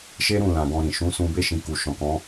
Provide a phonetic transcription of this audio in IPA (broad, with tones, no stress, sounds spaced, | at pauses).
ʃ e˦ ɾ ũ˦˨ l ã˨ ɡ ɔ̃˧ ɾ ĩ˨ ʃ ũ˨˦ s ũ˧ b e˦ ʃ ĩ˧ k u˨ ʃ ɔ̃˨ k ɔ̃˨˦